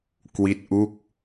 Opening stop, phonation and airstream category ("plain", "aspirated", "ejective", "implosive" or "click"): plain